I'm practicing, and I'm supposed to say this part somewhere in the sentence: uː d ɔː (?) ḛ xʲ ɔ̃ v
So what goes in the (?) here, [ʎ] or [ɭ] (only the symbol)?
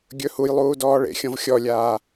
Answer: ɭ